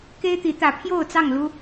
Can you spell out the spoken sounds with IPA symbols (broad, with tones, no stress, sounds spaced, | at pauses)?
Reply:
k e˦ ɪ̯ t̪ i˨˦ t̪ ä˨˦ pʰ j o˥˨ ʊ̯ t͡s ɑ˥˨ ŋ l u˦